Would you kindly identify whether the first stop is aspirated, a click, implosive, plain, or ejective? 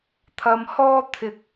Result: aspirated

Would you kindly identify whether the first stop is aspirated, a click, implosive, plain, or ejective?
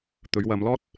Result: plain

